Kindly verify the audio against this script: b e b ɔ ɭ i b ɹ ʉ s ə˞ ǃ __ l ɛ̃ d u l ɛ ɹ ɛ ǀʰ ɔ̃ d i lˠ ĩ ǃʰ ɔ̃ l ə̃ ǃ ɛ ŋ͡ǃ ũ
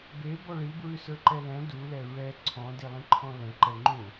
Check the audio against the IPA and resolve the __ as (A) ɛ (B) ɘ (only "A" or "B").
A